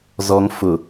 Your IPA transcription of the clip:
z ɔ ŋ f ʊ

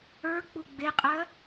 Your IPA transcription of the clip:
ə˞ k͡p u ɡ͡b e qʼ ɜ

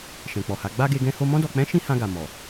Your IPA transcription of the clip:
ʃ ɛ̃˨ k͡p ɔ˨ h a˨˦ ɡ͡b a˦ ɡ e˧ ɡ ɛ̃˧ h o˧ m ɔ̃˧ d ɔ˨ k͡p ɛ̃˨˦ ʃ ĩ˦ h ã˧ ɡ a˨ m ɔ˨

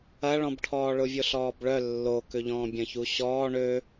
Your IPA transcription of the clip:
ɐ ɭ ɔ̃ b ʈʰ ɔː ɭ ʊ vʲ o ɬ ɔː b ɭ œ lː o k ʏ ʎ ɔ̃ː bʲ ɐ̃ ç u ɕ ɔː ɳ ø

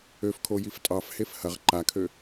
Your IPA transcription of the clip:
ø f kʰ o j i f tʼ ɑ f h e f h ɐ ʁ ǃ a kʰ ø

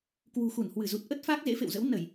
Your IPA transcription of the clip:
k w ṳ˨˩ x u˧˩ n h w ɨ˧˩ z u˨˩ t̚ ʔ ə˦˥ t̚ f aː˦˥ k̚ z ḛ˧˥ f ḛ˧˨ w z ə̰˧˥ w n ə˧˩˨ j

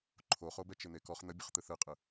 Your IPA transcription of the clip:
ǃʰ o χ o b ɛ t͡ʃ ɪ n̪ e k ɔ χ n̪ ə bʲ ɯ χ t̪ ɯ θ ɯ qʼ ɯ

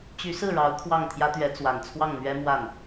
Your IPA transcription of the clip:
t͡ɕ y˧˥ s ɹ̩˥˩ ɻ ɑ˧˥ ʊ̯ kʰ w ɑ˥˩ ŋ t̪ʰ j ä˥ t̪ ɥ ɛ˧˥ t͡s w a˨˩ n t͡sʰ w ɑ˥˩ ŋ n̪ ɥ ɛ˥ m w a˥˩ n

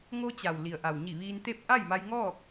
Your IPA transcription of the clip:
ŋ o˧ t͡ɕ a˩ w l i˩ ə̯ ʔ a˩ w ɲ i˧˩ ʋ iː˧ n t̪ e˥˨ p̚ ʔ a˥˨ j m a˧ j ŋ ɔː˥˨ k̚

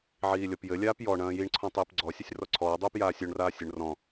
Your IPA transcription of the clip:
ʕ iː lʲ ɔ p j ɘ lʲ aː p j ɔ ɳ ɐ̃ː j i ɳ ǀʰ ɔ̃ tˤ iː p ɡ͡ǀ ɔ sʲ ɐ sʲ r ɔ ǀʰ ɔː dˤ uː p j aː sʲ o ɳ r aː sʲ ɘ ɳ r ɔ̃

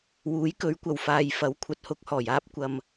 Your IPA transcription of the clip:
w uː˨˥ j k ɵ˨˥ ɥ kʷ ɐ˨ w f aː˨ j f ɐ˨˥ w kʷʰ ɐ˨ t̚ h ʊ˧ k̚ h ɔː˨˩ j aː˥ p̚ kʷ ɐ˨ m

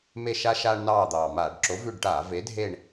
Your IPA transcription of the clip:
m e˦˨ ʃ a˦ ʃ aː˦ ɳ n ɑː˦˨ d̪ ɑː˨˩ m aː˧˩˧ ɖ ǁ o˨˥ v ʉ˦˨ ɖ ʈ aː˧˩˧ v e˨˥ dʱ e˦˨ ɳ

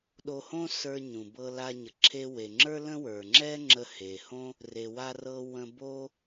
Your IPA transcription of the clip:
ɗ o˧ h õ˥ s ə˞˧ ɲ ũ˩ b ɤ˧ l a˧ ɲ ə˩ ǁʰ e˧ w e˩ ŋ͡ǁ ə˞˥ l ə̃˥ w ə˞˩ ŋ͡ǁ ɛ˥ ŋ͡ǁ ə˧ h e˩ h õ˥ | r e˩ w a˧ r ɤ˧ w ə̃˧ b o˥

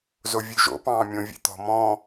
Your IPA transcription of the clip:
z o vʲ ʉ ʒ o̰ p ɑ̃ː mʲ õ vʲ ḛ t̪ ɔ̤ m ɔ̃

